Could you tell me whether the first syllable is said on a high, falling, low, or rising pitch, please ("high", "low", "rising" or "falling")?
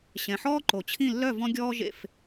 low